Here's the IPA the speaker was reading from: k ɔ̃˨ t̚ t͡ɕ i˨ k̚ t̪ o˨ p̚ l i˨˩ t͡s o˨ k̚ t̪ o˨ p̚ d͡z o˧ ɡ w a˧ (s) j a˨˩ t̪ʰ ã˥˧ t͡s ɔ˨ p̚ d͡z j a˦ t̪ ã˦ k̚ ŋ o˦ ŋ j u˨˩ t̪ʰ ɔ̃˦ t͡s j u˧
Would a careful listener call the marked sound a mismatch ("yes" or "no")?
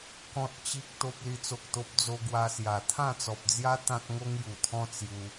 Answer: no